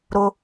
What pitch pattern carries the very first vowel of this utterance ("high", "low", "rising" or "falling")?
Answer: high